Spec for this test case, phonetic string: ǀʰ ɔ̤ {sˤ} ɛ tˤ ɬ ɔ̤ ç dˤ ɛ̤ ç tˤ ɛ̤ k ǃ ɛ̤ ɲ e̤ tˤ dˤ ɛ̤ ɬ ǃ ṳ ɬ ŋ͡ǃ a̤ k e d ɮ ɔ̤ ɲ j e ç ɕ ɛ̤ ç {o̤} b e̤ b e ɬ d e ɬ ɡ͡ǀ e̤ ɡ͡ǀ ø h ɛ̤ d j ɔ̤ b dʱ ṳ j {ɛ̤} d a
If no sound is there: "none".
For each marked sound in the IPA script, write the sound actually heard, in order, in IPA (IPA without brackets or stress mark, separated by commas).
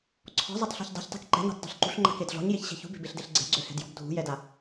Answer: zˤ, ṳ, ɛ